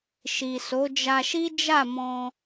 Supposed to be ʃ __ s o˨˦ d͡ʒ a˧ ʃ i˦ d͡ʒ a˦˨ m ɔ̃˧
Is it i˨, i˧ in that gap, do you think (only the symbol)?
i˨